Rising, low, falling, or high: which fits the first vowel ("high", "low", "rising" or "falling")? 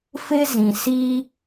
high